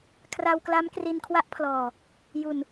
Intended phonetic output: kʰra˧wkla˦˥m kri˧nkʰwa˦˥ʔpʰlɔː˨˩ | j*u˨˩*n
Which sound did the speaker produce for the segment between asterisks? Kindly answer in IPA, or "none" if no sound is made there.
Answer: u˨˩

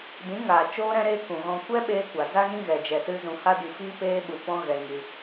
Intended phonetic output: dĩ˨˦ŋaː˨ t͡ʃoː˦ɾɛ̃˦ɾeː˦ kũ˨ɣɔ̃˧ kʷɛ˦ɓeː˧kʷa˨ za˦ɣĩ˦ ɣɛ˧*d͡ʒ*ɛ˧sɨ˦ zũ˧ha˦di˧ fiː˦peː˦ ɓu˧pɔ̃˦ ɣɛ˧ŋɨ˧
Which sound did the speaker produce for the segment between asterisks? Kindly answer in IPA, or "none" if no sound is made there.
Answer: d͡ʒ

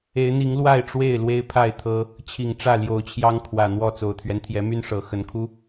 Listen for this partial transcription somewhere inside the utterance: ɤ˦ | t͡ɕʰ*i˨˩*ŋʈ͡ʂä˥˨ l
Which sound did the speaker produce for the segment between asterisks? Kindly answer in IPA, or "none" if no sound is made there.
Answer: i˨˩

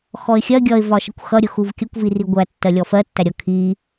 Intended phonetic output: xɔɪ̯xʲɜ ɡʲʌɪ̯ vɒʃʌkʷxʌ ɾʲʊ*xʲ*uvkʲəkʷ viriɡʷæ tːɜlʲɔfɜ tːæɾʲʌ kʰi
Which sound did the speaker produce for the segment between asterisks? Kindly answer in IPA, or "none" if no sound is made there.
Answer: x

